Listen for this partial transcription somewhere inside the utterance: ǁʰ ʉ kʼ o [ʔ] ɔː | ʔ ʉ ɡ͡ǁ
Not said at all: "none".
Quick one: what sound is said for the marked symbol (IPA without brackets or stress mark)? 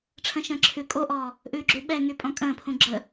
ʔ